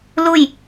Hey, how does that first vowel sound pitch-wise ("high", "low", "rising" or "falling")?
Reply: falling